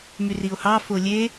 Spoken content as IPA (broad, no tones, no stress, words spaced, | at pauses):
myrio̯hɑ folʲe